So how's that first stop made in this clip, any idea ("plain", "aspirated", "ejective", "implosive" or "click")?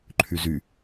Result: click